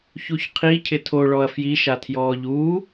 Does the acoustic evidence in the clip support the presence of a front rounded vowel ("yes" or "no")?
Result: no